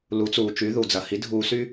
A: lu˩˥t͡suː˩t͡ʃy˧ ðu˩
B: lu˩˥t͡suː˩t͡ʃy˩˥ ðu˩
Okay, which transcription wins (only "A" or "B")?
B